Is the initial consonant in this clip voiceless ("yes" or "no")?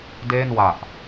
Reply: no